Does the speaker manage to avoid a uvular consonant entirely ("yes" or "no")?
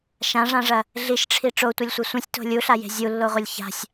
no